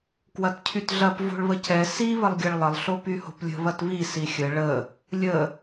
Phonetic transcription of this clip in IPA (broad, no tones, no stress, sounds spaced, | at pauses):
k w ɐ t cʰ y t ɮ ɐ p v o̤ ɭ β ə c ɛ s i β ə lˠ ɡʲ ɐ ɭ lˠ ə lˠ ɬ o p y h o̤ p lʲ ə̤ β ɐ t β i s i xʲ ə ɭ ə | lʲ ə